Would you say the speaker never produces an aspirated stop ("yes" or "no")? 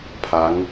no